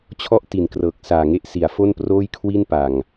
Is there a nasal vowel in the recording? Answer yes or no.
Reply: no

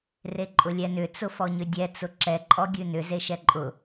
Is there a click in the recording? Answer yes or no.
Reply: yes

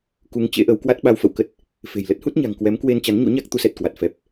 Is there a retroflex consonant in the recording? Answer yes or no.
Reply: no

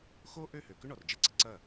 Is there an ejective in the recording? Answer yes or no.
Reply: no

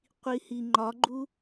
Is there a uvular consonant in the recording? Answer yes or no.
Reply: yes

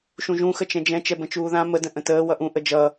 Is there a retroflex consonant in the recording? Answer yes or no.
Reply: no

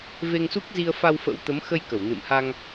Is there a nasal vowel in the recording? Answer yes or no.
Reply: no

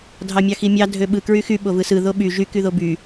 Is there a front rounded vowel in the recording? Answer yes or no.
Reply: yes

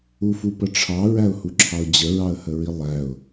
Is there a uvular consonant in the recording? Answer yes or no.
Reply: no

